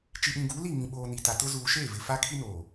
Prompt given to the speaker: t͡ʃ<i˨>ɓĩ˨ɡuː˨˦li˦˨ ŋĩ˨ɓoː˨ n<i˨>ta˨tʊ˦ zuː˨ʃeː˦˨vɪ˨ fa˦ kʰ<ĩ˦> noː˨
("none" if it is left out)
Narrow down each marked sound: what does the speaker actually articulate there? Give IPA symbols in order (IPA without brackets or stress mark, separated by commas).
i˨, i˨, i˦